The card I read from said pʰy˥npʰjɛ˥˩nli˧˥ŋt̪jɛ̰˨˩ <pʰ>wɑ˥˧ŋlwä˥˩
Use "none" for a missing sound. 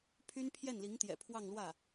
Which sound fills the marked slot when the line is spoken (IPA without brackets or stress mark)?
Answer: pʰ